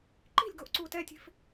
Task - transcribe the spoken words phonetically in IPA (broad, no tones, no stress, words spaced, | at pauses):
ǃi̤lʲɡoʔǀuːt ɛtʲe̤f